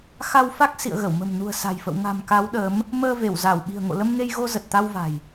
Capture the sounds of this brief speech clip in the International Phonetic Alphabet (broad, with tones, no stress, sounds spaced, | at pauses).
x a˧ w f a˦˥ k̚ s ḭ˧˨ ə̯ ɣ ə˧˩ w m ə̤˨˩ m n ṳ˨˩ ə̯ s a̤˨˩ j f ə̰˧˨ w ŋ a̤˨˩ m k a˨˦ w ɗ əː˨˦ m | m əː˧ v e˧˩ w z a˧˩ w ɓ i̤˨˩ ə̯ ŋ o̰˧˨ l ə˧ m ŋ e˧ j ɣ o˧ z ə˨˩ t̚ t̪ a˧ w v a̤˨˩ j